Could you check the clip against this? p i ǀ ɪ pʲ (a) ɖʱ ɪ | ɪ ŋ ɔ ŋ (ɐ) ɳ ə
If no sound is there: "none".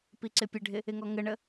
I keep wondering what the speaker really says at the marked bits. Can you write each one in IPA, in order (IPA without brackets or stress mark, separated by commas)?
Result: ə, ə